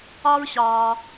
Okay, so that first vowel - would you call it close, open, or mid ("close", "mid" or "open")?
open